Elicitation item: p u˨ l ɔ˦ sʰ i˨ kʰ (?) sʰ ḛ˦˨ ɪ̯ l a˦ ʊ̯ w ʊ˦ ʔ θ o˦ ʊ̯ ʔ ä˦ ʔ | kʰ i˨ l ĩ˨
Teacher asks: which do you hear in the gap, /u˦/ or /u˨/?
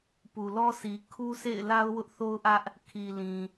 u˦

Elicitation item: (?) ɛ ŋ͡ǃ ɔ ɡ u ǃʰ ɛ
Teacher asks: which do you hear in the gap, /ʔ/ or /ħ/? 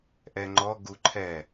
ʔ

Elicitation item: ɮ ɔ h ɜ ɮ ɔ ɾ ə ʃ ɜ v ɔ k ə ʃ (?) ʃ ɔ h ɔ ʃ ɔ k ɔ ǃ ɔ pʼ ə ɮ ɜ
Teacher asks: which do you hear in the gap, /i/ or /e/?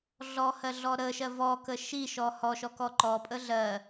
i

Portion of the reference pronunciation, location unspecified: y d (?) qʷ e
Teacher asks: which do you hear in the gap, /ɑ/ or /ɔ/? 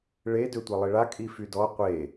ɔ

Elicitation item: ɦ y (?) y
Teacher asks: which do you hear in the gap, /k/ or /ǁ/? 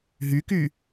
k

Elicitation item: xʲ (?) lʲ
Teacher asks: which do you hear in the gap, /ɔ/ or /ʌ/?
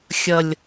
ʌ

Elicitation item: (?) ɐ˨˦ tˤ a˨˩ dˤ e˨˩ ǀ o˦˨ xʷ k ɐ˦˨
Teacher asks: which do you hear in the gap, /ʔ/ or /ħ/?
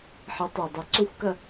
ħ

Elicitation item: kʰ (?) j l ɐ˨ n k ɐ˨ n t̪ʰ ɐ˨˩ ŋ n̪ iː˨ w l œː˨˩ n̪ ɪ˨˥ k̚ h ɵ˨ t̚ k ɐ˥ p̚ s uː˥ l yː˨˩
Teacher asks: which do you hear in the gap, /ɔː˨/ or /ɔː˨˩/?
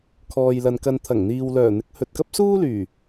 ɔː˨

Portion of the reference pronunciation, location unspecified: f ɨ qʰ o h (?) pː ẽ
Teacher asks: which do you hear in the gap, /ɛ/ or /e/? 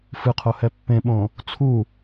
ɛ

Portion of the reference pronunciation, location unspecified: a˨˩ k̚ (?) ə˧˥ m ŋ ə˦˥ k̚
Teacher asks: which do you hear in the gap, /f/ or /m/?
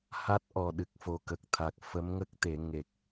f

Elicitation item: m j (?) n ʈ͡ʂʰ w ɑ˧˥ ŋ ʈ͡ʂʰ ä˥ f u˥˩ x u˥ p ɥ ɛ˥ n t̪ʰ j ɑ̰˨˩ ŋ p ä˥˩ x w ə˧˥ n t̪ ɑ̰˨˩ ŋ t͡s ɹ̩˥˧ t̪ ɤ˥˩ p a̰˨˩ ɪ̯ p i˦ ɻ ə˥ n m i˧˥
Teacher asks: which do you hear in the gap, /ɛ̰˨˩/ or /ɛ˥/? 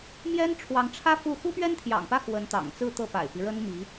ɛ˥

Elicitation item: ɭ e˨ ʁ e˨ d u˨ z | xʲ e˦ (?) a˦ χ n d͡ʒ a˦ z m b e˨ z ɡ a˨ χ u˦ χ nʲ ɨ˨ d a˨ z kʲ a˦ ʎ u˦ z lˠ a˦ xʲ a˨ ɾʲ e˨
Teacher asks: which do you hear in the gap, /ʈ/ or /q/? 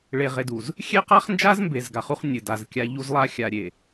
q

